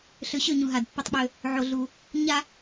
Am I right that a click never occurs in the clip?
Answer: yes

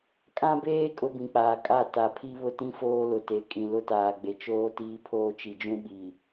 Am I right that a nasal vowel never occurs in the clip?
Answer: no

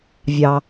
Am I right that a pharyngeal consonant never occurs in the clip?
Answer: yes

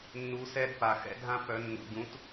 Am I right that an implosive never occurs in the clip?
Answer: yes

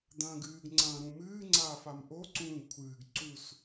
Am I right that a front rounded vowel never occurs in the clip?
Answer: yes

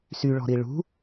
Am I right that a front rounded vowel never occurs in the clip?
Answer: no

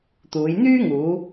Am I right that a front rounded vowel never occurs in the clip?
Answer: no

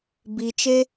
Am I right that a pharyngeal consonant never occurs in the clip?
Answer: yes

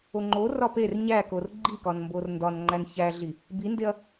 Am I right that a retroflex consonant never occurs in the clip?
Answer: yes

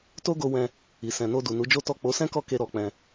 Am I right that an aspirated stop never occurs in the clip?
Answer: yes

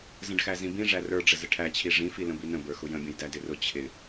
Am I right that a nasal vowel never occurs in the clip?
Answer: no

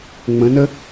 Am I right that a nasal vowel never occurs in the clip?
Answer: no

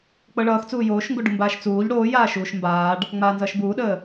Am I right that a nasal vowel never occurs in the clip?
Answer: yes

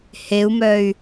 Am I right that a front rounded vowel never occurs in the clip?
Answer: no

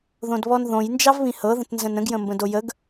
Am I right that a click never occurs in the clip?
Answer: yes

